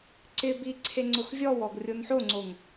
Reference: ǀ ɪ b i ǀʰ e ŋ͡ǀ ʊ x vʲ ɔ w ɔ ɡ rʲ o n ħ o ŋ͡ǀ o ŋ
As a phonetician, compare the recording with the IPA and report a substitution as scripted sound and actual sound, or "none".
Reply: none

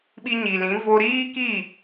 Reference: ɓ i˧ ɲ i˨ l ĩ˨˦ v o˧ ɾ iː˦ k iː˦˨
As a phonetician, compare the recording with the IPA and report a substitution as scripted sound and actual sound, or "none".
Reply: none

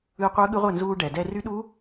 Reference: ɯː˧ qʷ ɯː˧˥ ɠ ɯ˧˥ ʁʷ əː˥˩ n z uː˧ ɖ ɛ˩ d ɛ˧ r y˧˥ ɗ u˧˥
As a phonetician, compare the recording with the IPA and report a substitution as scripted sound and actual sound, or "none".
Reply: none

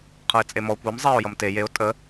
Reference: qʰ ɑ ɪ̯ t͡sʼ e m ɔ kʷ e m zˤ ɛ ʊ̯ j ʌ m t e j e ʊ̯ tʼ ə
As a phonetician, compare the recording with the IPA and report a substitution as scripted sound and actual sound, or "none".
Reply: ɑ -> ʌ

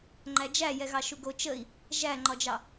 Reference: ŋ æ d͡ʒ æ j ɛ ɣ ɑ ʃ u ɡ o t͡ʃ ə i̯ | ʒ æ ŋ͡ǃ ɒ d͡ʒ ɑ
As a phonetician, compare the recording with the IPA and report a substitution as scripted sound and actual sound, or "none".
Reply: ŋ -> ŋ͡ǃ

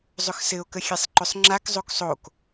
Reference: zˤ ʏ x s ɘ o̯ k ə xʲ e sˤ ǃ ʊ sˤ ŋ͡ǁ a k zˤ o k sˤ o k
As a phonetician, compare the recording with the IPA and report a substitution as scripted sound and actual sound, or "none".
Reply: none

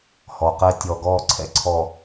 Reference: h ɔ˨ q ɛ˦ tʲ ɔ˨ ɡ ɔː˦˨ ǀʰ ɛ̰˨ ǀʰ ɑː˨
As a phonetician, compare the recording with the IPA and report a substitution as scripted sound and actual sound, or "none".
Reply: ɑː˨ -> ɔː˨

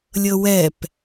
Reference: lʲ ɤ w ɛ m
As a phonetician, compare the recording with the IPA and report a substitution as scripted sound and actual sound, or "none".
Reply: m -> p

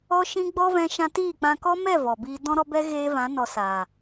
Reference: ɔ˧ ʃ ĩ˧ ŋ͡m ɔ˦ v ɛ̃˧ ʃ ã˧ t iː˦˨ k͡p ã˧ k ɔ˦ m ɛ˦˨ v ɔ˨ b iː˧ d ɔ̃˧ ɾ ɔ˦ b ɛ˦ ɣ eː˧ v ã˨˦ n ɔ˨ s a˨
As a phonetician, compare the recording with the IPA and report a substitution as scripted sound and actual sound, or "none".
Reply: ŋ͡m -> ɡ͡b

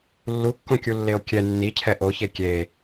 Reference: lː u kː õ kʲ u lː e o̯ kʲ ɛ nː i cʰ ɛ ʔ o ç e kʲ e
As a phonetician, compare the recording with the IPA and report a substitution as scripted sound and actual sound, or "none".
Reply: none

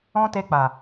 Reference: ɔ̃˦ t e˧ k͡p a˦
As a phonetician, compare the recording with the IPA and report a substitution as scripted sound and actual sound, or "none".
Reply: a˦ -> a˨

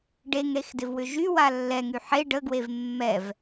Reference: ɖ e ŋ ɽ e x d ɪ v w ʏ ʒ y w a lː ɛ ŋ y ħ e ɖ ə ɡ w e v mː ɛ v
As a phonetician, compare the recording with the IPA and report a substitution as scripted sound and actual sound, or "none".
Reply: none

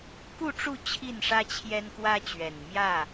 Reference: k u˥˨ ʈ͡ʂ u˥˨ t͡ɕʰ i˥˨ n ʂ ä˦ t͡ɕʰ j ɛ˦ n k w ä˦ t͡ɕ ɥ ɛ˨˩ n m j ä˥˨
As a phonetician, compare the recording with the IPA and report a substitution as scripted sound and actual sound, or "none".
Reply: none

